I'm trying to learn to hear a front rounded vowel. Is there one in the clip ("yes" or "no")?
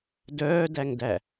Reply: yes